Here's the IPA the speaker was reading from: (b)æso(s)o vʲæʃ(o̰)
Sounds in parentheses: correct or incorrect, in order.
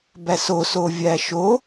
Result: correct, correct, incorrect: o

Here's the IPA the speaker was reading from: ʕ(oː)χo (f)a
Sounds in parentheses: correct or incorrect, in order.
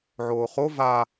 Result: correct, incorrect: v

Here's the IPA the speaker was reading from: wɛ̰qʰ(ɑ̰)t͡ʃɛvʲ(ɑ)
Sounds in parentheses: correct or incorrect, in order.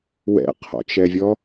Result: incorrect: ɔ̰, incorrect: ɔ

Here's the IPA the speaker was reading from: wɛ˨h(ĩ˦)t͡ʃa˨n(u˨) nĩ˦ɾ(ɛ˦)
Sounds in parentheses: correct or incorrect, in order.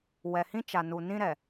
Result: correct, correct, incorrect: ɛ˨

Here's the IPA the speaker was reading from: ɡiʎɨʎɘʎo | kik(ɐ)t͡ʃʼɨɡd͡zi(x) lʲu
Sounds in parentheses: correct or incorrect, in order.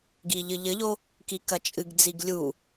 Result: correct, incorrect: ɡ

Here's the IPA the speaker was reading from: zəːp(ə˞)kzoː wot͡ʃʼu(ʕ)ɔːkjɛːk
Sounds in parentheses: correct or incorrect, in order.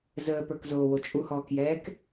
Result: correct, incorrect: h

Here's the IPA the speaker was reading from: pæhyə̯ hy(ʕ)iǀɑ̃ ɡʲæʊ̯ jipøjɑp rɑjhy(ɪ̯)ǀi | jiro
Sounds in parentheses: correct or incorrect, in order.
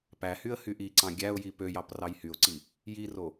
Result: incorrect: ʔ, incorrect: ʊ̯

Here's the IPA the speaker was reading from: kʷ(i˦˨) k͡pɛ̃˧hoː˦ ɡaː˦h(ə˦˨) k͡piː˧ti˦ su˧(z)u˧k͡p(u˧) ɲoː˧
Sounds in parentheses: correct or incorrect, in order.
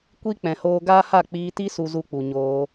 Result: incorrect: i˦, incorrect: a˦˨, correct, incorrect: u˨

